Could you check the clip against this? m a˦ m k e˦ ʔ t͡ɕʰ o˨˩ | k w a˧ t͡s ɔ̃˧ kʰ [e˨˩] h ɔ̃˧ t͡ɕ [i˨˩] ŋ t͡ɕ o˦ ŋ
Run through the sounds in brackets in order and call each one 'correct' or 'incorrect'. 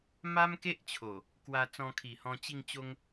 incorrect, incorrect

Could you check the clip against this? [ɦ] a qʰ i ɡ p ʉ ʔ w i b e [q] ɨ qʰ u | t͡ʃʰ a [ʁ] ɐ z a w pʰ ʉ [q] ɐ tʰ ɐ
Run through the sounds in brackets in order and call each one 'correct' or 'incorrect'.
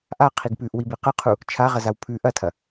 incorrect, correct, correct, incorrect

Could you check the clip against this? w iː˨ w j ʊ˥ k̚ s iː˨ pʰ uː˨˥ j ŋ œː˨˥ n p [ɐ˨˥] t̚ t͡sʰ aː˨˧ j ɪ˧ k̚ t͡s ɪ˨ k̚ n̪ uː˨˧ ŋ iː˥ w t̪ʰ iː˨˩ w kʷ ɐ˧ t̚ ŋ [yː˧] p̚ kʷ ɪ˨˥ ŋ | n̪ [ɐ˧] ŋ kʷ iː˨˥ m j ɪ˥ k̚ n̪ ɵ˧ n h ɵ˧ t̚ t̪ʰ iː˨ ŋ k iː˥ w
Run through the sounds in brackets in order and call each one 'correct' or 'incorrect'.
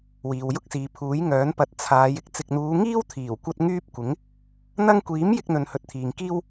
correct, incorrect, correct

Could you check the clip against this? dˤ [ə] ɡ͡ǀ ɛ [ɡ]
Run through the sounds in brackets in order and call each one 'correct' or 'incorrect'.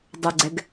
correct, correct

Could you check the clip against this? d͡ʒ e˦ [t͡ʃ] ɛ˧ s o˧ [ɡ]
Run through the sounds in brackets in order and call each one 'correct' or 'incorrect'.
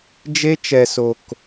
correct, incorrect

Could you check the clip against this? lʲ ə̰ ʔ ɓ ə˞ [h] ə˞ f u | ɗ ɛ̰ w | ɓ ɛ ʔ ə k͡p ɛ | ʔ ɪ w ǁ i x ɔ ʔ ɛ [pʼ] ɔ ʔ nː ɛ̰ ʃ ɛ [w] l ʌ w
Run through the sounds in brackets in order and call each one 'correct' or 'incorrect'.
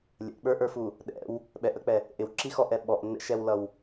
incorrect, incorrect, correct

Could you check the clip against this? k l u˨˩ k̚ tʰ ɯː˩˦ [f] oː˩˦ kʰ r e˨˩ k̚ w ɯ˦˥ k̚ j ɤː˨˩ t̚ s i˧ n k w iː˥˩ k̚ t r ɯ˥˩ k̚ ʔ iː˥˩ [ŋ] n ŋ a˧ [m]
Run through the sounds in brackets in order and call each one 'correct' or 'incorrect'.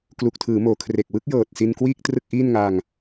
incorrect, incorrect, incorrect

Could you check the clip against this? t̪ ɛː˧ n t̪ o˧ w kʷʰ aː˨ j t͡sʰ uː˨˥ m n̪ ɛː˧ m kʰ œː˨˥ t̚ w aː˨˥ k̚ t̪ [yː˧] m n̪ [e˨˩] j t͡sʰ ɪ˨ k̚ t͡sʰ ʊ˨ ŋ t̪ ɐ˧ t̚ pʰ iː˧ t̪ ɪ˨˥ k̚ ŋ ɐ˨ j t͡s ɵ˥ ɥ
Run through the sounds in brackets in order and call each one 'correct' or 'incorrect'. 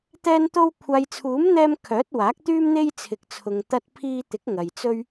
incorrect, incorrect

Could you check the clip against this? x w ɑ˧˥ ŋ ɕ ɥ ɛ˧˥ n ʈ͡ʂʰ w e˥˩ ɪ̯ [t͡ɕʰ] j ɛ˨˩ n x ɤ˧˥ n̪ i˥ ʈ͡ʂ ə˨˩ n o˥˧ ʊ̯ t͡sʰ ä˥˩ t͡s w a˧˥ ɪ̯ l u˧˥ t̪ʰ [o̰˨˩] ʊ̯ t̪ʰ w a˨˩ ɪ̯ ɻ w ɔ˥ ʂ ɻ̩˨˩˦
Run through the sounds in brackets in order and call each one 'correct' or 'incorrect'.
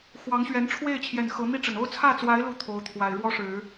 correct, incorrect

